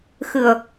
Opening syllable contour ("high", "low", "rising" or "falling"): low